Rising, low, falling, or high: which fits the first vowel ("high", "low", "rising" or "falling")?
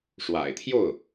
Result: low